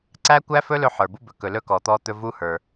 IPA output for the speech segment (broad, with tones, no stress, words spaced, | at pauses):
ǀæ˦kʷæ˦fɵ˦ lɵ˦ħə˞˨bu˦bɵ˨ kɵ˨lɵ˦ kɔ˨t̪ɔ˦t̪ɵ˦ vu˦hə˞˨